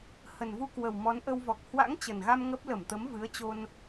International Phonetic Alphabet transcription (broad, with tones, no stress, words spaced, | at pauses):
hə˨˩nvu˧kwə˨˩w mɔ˨˦nʔə˧wvɔ˨˩k̚ hwa̰˧˥ŋt͡ɕə˨˩nɣa˧m ŋə˦˥p̚ lə˧˩mt̪ə˨˦mvɨ˨˦ə̯t͡ɕo˧n